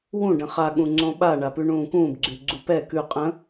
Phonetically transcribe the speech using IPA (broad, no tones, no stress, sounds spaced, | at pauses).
w ũ ɖ ə̃ χ a ɠ ũ ŋ͡ǀ õ ɓ a ɳ a p ʉ ɳ ũː k ũː b ɡ͡ǀ ʉ ɡ͡ǀ u p ɛ k ʉ qʼ ə̃